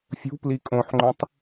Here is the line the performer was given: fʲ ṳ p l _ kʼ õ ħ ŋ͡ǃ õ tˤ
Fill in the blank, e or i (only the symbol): i